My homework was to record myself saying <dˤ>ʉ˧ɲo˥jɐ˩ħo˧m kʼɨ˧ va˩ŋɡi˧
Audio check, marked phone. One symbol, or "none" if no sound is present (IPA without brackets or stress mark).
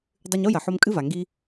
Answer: dˤ